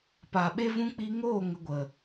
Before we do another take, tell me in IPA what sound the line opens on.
p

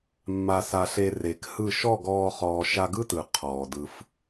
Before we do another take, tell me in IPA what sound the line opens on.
mː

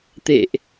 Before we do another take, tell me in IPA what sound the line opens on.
t̪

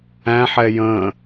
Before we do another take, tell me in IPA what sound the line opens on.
æ̃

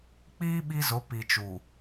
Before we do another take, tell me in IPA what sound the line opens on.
k͡p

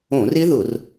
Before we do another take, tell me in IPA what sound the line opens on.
õ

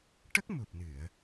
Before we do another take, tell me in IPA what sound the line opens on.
ʈ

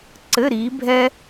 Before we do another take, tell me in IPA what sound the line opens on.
ǀ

